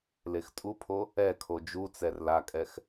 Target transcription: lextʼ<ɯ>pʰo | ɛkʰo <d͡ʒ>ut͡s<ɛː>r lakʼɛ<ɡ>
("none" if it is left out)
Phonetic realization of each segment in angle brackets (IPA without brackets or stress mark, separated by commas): u, d͡ʒ, ɛ, x